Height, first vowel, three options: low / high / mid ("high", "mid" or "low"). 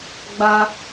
low